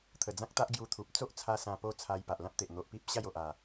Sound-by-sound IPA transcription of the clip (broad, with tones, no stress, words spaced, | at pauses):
t̪ʰə˨˩d͡zã˦k̚t̪a˦ʔ ɡju˧t̪ʰu˨p̚ t͡so˦ʔt͡sʰa˧ sã˧po˦t͡sʰa˧j pa˨ʔlã˦p̚t̪e˨ʔ n̪o˨ʔpi˦p̚ ɕa˥˧jo˨ʔ a˨˩